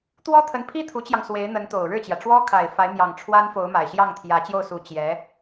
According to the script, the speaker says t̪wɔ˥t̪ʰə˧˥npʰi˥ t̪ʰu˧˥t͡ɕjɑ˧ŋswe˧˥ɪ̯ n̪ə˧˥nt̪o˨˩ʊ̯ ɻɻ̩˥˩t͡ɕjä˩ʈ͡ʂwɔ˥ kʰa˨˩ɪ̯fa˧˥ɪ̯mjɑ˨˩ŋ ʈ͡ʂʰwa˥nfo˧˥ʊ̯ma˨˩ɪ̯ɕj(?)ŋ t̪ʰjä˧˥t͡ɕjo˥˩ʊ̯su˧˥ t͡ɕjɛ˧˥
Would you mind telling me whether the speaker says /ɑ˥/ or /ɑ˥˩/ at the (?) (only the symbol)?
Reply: ɑ˥˩